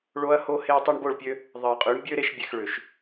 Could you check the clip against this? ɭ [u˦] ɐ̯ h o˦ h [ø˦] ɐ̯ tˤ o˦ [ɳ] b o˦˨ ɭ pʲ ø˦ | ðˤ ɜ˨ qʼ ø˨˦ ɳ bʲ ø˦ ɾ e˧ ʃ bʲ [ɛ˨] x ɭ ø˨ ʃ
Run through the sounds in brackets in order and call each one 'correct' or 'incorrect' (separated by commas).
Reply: incorrect, incorrect, correct, correct